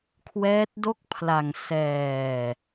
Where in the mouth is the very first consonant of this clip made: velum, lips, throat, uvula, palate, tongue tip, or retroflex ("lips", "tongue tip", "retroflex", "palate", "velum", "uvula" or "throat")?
velum